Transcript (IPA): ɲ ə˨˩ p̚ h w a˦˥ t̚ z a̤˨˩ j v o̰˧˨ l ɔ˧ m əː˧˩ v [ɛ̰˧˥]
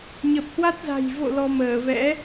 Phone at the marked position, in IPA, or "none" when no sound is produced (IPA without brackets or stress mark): ɛ̰˧˥